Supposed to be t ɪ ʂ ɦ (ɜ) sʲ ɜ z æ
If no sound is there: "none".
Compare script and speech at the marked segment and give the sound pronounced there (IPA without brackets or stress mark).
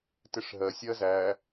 ɜ